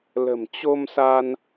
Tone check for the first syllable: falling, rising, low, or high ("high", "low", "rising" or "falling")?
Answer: low